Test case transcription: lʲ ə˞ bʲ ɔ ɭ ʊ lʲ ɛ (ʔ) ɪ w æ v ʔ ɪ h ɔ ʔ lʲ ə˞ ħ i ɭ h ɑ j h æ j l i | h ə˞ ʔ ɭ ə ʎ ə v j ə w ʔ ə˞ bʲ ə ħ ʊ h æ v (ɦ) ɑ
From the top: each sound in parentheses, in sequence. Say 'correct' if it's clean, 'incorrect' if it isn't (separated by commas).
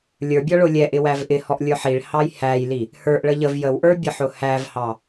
correct, incorrect